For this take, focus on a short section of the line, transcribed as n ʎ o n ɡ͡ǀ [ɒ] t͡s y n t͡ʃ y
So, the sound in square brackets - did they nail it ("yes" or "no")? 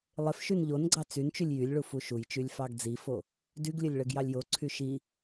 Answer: no